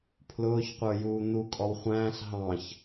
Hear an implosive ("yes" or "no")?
no